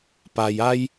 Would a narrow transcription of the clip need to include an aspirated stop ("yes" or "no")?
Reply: no